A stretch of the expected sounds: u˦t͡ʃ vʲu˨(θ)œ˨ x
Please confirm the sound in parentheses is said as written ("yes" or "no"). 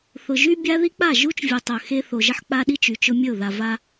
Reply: no